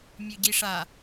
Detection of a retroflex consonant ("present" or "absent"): present